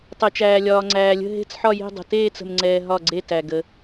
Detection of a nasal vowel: absent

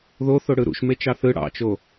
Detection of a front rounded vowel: absent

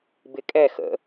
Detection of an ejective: present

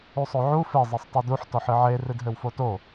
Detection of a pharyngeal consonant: present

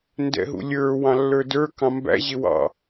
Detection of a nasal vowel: present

